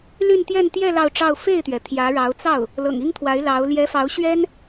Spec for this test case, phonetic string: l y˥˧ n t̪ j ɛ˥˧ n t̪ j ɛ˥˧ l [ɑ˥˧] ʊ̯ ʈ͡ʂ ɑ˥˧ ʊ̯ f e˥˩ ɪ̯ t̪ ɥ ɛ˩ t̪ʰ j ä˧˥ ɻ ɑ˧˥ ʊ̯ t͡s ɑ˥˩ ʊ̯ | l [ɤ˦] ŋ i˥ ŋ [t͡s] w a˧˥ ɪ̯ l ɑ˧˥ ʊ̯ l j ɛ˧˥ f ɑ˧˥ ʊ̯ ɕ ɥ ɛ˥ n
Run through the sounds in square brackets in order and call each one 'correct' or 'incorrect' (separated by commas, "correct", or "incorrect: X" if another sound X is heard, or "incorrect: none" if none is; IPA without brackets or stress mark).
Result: correct, incorrect: ɤ̰˨˩, incorrect: t̪ʰ